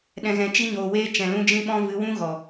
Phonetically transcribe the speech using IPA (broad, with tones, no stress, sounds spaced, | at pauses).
ɗ ɛ̃˧ ɣ ɛ̃˧ t͡ʃ i˦ ɲ oː˧ w eː˦ t͡ʃ ɛ̃˨ l ũ˧ d͡ʒ ĩ˧ ɓ ɔ̃˧ v ɨ˨˦ w ũ˦ ɣ ɔ˨